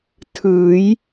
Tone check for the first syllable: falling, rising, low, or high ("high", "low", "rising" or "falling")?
rising